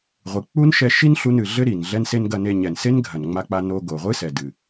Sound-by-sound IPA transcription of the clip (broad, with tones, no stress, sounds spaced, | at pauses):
ʁʷ ɨ˩ k͡p u˥ n ʃ ɛ˧ ʃ i˥ n ɬ u˧ n ɨ˩ ɮ ɘ˥ ɾ i˩ n ɮ ɛ˧ n s e˧ n ɡ ɐ˧ n e˧ ɲ ɛ˩ n s e˥ n ɡʱ ɐ˩ n ŋ͡m a˧ k͡p a˧ n o˧ ɡ o˩ ʁʷ ɨ˥ s ɛ˩ d ɨ˩